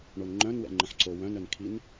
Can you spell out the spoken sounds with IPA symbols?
ɳ o n ŋ͡ǃ œ̃ n w ɛ̰ ŋ͡ǃ ə̃ ħ ǀ o w œ̃ n œ n kʰ i n

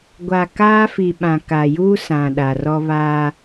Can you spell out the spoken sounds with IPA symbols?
ɡʷ a˨ k aː˦ f i˨ ɓ ã˨ k a˨ j uː˦ s ã˨ ɗ a˨ r ɔ˦ β aː˦

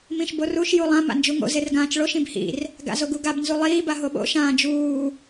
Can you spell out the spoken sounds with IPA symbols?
m ĩ ʃ b o r u ʃ j u lˠ ã m a̰ n d͡ʒ u ŋ o̰ z e r ɡ ãː t͡ʃ ɭ o ʃ ĩ b h ḭ r | ɡ a̰ z o ɡ u ɡ a b n z u lˠ iː b a ɦ o ɓ o̰ ʃ ãː d͡ʒ uː

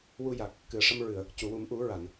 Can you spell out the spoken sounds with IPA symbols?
w u˧ j a˨˩ k̚ | k ɨ˨˩ ə̯ ʂ ə˧ m ɹ ɨ˨˩˨ ə̯ | c u˨˩˨ w u˨˩˦ m ʔ u˨˩˦ ɹ a˨˩˨ n

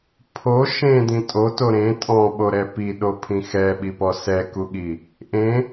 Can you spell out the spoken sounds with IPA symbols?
pʰ o ʃ ẽ d ĩ tʼ o t o ɾ ẽ tʼ ɔ̃ ɓ o ɾ ɛ p i ɗ o pʰ ĩ x ɛ ɓ i p ɔ s ɛ k u ɠ i | ʔ ẽ

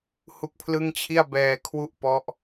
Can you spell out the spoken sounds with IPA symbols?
h u˦˥ k̚ pʰ l ɯ˥˩ ŋ t͡ɕʰ i˥˩ a̯ b ɛː˧ kʰ w u˥˩ ʔ p ɔ˦˥ ʔ

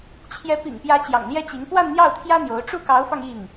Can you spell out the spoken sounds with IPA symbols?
t͡ɕʰ j ɛ˧˥ p ḭ˨˩ ŋ p j ä˧˥ t͡ɕ j ɑ̰˨˩ ŋ l j ɛ˥ t͡ɕ i˧˥ ŋ p w a˥˧ n n̪ j ɑ˥˩ ʊ̯ t̪ʰ j ä˥ n̪ j o˧˥ ʊ̯ ʈ͡ʂ u˥˩ k ɑ˧˥ ʊ̯ f ɑ˧ ŋ i˥˩ ŋ

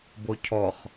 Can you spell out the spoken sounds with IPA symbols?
b o cʰ ɔ χ

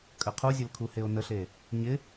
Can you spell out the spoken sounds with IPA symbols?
kʼ ə qʰ u zʲ ə l kʰ u h e o̯ n ə ɬ e | ɲ ɪ

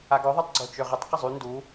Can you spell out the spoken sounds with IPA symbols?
a ɡ ɔ ðˤ u tˤ ɡ͡ǀ o t͡ʃ ø ʁ ə tˤ q ə zˤ y n d u

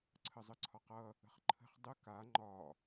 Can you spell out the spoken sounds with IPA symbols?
ǀʰ ə zˤ ə ǀʰ ɒ q ʌ | ə̤ χ ǃʰ ə̤ χ dˤ ə k a ŋ͡ǃ ɒ

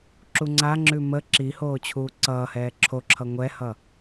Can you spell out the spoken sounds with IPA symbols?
ǁ u ŋ͡ǀ a ŋ͡ǁ ʉ m ə ǁ i h oː t͡ɕʰ uː ǀ ʌː h ɛː ǁʰ o ǁʰ ʌ ŋʷ ɛ h ʌ

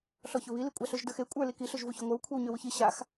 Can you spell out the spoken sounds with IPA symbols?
ɬ ɔ ç ɵ β i l i kʷʼ a ɬ ø ʒ d ə˞ x e kʷʼ ə˞ l i k i ɬ ø ʒ v u ç ø ŋʷ ə˞ w kʷʰ e w ɲ ø w u ç i ɕ a x

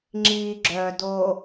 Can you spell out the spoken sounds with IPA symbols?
ŋ͡ǁ iː ɡ͡ǁ œː d oː

